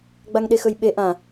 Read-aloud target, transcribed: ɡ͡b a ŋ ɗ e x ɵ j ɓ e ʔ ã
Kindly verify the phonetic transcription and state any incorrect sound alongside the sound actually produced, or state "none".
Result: none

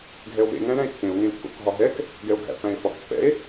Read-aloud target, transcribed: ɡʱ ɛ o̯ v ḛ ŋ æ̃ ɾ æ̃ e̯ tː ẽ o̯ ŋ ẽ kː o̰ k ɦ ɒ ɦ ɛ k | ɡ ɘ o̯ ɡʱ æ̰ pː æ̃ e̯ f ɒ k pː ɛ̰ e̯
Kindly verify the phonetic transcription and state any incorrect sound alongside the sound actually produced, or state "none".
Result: ɘ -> ɛ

